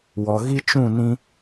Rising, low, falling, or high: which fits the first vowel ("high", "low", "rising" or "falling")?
low